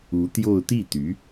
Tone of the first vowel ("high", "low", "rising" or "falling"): rising